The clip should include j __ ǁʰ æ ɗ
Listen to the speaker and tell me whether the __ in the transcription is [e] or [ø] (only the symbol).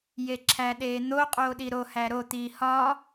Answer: e